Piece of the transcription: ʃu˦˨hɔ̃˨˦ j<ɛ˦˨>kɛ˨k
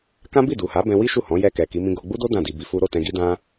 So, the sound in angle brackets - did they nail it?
yes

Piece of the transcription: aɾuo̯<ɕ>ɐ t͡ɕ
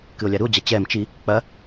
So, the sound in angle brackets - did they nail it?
no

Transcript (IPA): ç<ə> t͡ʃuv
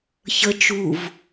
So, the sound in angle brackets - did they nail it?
yes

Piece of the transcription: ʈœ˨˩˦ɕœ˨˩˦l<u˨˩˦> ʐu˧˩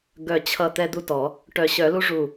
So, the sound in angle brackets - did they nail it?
no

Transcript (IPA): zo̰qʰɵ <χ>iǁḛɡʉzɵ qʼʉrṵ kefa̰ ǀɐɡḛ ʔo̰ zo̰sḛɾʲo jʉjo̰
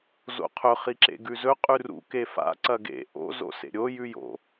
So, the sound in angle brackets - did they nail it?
yes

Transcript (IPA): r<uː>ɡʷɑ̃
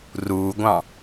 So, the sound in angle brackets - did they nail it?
yes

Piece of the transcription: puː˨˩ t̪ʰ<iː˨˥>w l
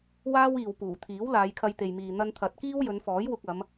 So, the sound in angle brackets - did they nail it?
yes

